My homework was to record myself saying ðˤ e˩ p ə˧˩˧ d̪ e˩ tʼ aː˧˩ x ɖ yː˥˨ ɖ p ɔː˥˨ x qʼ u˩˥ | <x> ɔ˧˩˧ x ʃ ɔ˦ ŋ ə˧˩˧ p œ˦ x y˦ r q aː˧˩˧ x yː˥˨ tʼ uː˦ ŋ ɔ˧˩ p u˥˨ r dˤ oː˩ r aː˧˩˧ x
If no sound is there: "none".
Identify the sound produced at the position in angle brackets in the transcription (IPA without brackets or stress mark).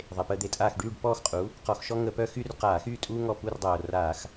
q